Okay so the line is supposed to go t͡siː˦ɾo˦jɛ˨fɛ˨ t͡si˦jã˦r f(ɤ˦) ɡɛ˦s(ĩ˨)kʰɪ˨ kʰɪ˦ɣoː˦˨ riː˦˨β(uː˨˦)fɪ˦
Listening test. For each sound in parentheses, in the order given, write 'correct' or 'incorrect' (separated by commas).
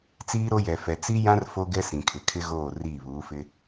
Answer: incorrect, correct, correct